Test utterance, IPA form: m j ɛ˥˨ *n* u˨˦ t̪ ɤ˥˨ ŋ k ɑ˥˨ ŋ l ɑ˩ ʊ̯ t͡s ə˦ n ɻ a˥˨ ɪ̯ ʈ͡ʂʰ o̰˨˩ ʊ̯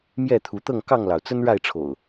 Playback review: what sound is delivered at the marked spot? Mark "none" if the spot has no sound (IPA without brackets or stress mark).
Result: t̪ʰ